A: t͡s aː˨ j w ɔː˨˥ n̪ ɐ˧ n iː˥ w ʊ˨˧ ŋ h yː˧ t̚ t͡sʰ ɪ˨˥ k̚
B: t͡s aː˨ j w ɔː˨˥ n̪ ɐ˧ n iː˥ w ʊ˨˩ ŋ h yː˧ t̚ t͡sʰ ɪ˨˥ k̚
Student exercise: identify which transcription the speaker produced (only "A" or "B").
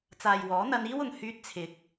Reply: B